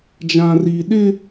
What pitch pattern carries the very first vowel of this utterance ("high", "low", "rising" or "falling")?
high